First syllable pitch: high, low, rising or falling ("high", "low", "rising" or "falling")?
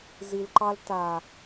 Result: low